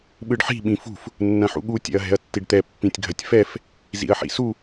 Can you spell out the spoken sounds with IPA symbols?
ɓɯɖħi̤ ɓĩfṳf | nːɐ̃ħṵɠu tʲɛ̰ɐ̯ɦɛ̤ɐ̯tːiɖt̪ɛ pːĩtʲɡʱɐtʲfɛf | zḭɐ̯ħḭsu

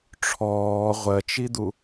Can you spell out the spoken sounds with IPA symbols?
ʈ͡ʂʰɔː ʁʷɜt͡ʃid̪u

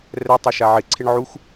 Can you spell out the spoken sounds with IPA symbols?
rɛ tˤeʃaʕɪ ǀʰɪɳʕux

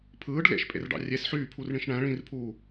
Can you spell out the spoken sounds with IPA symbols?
pʰɯːɖ lḛʃpʼḛrɖɑ̰ rʲes ħyːpʰurɳĩʃ ɳæ̃ ɭĩrpʰuː

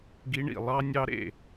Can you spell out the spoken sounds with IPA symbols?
ɡi˦˥ɳḭ˥˨ lˠɑ˦˥nʲɑ˦˥ ɾḛ˥˨

